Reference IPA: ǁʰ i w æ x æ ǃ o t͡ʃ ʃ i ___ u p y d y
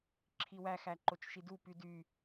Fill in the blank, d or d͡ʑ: d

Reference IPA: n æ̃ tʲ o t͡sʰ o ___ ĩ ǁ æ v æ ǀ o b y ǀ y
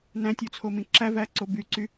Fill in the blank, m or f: m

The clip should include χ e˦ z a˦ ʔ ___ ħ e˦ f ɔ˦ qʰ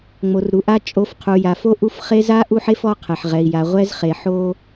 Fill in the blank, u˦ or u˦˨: u˦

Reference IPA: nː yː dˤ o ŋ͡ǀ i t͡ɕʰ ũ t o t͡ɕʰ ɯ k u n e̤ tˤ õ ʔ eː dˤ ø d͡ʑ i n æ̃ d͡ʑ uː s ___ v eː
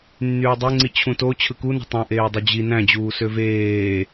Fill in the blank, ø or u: ø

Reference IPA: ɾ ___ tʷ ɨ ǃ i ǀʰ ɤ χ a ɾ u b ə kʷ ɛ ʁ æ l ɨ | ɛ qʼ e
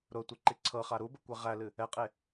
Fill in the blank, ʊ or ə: ʊ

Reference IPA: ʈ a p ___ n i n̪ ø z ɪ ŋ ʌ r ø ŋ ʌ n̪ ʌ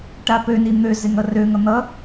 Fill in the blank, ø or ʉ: ø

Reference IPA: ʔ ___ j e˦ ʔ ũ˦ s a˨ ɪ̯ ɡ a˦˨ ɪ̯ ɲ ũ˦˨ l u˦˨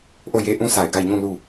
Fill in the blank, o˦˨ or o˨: o˦˨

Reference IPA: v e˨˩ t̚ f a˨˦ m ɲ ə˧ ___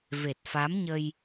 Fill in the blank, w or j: j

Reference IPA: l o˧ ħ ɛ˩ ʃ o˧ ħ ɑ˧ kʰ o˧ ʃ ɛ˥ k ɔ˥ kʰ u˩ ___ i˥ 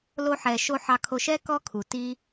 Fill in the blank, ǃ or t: t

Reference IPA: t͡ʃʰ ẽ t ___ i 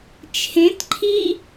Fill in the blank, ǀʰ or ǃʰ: ǃʰ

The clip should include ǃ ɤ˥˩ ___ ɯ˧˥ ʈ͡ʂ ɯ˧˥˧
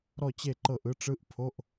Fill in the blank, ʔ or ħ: ʔ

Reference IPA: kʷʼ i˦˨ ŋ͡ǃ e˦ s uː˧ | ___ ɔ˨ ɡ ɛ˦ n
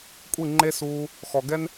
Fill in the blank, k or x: x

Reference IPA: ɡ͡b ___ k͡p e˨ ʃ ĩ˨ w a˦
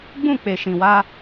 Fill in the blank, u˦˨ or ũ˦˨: ũ˦˨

